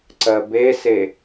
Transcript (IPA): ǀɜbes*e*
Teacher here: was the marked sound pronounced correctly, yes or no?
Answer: yes